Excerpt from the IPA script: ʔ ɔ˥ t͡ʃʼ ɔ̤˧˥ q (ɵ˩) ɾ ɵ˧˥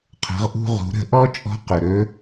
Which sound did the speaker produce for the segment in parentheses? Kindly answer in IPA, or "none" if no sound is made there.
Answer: ɵ˩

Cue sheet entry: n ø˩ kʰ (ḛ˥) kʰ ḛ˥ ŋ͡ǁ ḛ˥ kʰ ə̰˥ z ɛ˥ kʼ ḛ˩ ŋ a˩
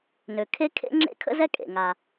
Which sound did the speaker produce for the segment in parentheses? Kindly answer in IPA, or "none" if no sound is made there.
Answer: e˥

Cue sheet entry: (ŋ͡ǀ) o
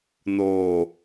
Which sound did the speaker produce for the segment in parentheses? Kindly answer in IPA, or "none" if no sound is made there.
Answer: n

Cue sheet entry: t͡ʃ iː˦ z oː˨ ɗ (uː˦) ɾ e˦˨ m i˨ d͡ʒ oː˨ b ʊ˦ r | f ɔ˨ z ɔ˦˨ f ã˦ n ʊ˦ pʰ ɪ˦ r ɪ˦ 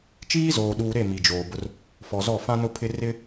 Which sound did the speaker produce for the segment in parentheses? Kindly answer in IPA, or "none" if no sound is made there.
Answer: uː˨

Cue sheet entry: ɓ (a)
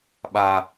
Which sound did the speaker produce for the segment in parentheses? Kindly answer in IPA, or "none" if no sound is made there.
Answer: a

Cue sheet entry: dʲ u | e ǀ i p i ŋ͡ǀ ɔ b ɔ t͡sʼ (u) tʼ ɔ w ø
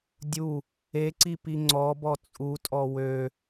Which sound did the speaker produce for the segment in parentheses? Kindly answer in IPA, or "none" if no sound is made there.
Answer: u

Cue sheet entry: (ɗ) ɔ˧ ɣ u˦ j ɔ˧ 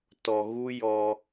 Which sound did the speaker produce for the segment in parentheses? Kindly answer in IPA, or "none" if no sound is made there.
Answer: t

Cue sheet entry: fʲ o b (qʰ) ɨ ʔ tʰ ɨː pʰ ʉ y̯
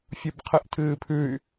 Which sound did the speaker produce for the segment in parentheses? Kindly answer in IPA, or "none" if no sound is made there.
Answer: qʰ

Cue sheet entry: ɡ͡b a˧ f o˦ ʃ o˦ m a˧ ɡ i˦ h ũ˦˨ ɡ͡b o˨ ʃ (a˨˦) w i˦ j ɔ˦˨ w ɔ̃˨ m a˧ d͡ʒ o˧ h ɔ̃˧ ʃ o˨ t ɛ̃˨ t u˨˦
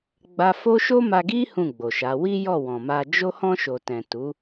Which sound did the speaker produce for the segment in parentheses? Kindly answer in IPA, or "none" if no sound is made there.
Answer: a˨˦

